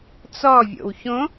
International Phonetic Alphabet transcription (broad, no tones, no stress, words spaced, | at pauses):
t͡sɔvʲo̰w çõ